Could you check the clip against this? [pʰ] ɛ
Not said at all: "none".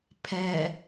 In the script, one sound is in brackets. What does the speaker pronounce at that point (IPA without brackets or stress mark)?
pʰ